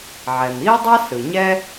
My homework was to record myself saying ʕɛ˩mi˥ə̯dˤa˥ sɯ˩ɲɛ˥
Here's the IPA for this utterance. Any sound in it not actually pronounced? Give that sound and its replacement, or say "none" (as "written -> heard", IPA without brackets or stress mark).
none